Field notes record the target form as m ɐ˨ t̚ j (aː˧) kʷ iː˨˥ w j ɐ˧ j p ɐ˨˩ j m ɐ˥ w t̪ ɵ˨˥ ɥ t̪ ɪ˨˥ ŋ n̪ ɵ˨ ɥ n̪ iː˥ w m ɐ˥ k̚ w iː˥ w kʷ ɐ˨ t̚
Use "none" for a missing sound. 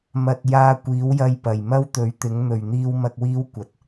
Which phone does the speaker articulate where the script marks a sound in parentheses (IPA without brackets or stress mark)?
aː˧